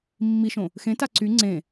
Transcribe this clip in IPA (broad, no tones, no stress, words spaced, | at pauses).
mːiʃõ | xẽta ǀy ŋ͡ǀẽ